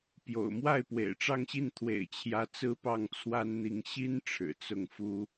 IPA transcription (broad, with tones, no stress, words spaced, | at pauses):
pjo̰˨˩ʊ̯ mwa˥˩ɪ̯pwḛ˨˩ɪ̯ʈ͡ʂɑ˥˧ŋɕi˥˩n t̪ʰwḛ˨˩ɪ̯t͡ɕʰjä˧˥ t͡sɹ̩˥pɑ˥˩ŋ t͡sʰwa˥nn̪i˧˥ŋ ɕi˥n ʈ͡ʂʰɻ̩˨˩t͡sʊ˥˩ŋ fu˥